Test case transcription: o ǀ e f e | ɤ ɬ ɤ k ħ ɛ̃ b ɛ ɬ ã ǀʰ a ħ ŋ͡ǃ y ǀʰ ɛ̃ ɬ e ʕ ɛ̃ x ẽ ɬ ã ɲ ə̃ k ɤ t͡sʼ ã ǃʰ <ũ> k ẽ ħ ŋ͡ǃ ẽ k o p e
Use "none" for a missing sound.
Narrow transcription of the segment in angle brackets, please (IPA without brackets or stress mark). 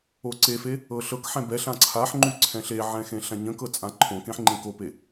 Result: õ